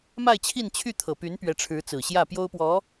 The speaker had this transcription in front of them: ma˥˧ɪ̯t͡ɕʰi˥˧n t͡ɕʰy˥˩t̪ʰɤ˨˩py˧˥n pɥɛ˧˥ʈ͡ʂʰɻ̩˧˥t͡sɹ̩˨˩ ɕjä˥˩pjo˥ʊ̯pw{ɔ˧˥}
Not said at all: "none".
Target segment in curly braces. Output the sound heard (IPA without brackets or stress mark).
ɔ˧˥